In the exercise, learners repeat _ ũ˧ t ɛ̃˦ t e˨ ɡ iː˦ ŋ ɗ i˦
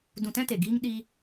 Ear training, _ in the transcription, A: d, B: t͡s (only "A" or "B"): A